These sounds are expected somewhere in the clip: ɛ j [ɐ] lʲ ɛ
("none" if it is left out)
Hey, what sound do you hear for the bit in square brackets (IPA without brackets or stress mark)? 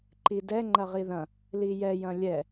ɐ̃